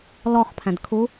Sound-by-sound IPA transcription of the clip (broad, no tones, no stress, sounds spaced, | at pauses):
l ɔ χ pʰ æ̃ d kʰ u